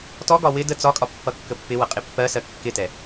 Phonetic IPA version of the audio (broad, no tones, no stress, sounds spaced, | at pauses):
t ɔ ɡ ɒ w ɪ d ə t͡s ɒ kʼ ɒ pː ʌ kː ə pː ɪ w ʌ qʼ ɪ pː ɜ s ɜ kː ɪ t ɛ